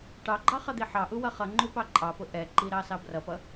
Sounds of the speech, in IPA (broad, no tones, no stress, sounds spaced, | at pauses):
ʈ ɑ ɡ͡ǃ ɑ χ ʌ d̪ i ħ ɑ ʔ u w ʌ χ ʌ ŋ͡ǃ u p ɑ ǃʼ ɑ p ʊ ʔ ɛ ǃ i ɾ ɑ s ɑ b r ʌ p ʌ